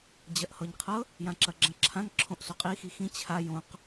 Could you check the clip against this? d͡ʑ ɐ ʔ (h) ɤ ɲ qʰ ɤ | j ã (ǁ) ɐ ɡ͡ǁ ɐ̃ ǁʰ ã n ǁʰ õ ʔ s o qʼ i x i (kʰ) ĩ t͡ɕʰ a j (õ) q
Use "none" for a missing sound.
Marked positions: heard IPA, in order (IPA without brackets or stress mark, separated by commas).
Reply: h, ǁ, x, õ